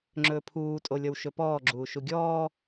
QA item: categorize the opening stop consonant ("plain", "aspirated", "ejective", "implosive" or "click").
click